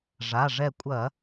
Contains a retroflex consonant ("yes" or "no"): yes